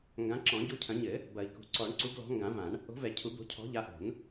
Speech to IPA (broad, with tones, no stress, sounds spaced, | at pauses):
ŋ ɡ ã˨˦ ǁ ɔ̃˨˩˦ ɟ u˨˦ cʰ ɐ̃˨˩˦ ɲ ɘ˨˩˦ | b ɐ˨˩˦ i̯ k ṳ˨˩˦ ǀ ɔ˨˩˦ ɳ ǀ u˨˦ ɡ l ɔ̤˨˦ ŋ ɡ ã˨˩˦ v ã˨˩˦ ɳ | o̤˨˦ v ɛ˨˩˦ cʰ u˨˩˦ b o̤˨˦ cʰ ɔ̤˨˦ ʎ a˨˦ ʔ o̤˨˩˦ n